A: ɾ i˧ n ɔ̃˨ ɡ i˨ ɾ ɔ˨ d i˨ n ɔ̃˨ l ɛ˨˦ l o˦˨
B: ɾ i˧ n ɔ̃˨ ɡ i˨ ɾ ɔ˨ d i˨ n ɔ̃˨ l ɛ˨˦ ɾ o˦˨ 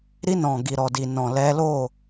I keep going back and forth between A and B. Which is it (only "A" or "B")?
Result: A